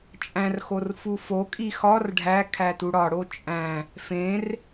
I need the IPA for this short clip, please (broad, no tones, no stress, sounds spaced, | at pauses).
t͡ʃʼ æ̃ r x o r f u f o kʼ i x ɒ r ɖʱ æ kʰ æ t u ɽ ɒ ɽ o t͡ʃʼ æ̃ | f ẽ r